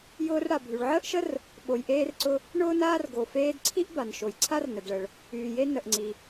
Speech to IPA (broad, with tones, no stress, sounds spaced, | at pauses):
j ʊː˧ r ɽ a˩ bʱ y˩ ɭ ʕ əː˥ ʔ ʃ ə˥ r | ɓ o˩ j ʔ eː˧ r ǀ ʊ˧ | ɳ ʊː˥ n aː˥ r ɡ o˩ f eː˧ d ǀʰ i˥ ʔ b a˩ n ʃ o˩ j ǀʰ a˥ r n ə˩ d ɭ ə˩ ɭ | yː˩ j e˧ n ə˩ ʔ ŋ͡ǀ i˩